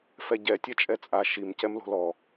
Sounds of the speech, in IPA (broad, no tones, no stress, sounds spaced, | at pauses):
f ɛ ɟ ɛ tʲ ɛ t͡ʃʼ ɛ t͡sʼ a ʃ i m c ɛ m l o̤ l ɔ